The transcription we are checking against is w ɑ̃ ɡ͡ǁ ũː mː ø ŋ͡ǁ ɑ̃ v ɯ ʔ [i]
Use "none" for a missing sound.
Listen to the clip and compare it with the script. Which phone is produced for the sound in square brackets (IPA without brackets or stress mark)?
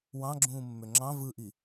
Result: i